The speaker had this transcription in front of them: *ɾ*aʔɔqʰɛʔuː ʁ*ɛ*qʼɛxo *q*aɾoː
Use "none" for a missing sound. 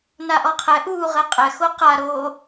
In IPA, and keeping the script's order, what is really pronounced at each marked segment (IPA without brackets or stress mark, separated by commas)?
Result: n, ɛ, q